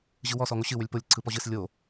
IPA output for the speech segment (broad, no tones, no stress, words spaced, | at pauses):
ʑɯwɔ sɔŋoɕɨ wʏlʲpolʲ ǀʰɯpɔʑɨs lʲo